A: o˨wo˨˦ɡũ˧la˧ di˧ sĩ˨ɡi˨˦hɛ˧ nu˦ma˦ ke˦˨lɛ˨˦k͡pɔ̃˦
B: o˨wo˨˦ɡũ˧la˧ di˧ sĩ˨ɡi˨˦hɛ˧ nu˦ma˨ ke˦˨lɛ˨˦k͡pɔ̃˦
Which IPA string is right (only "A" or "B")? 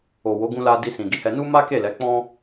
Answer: A